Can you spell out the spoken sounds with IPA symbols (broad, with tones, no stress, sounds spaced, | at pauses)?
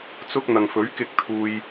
t͡s ʊ˧ k̚ n̪ ɐ˨ ŋ f ɵ˨˥ ɥ k ɪ˧ k̚ t̪ʰ uː˧ j